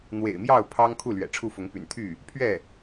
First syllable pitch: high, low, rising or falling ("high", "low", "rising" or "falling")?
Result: low